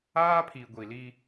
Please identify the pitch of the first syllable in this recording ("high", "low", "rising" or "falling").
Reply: high